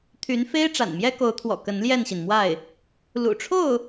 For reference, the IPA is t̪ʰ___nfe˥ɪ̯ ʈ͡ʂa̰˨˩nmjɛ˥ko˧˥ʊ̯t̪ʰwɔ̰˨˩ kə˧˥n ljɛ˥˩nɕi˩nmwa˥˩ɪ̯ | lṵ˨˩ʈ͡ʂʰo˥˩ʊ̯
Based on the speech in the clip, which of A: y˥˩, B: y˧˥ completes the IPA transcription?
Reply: B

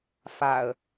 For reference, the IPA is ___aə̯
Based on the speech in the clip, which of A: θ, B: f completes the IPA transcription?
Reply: B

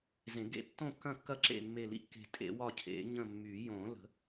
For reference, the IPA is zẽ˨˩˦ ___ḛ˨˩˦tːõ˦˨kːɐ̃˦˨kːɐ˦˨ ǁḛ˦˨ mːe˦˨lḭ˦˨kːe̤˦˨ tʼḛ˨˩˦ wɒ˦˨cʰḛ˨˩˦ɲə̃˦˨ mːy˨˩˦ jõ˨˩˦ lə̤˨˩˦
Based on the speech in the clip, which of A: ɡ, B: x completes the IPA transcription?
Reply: A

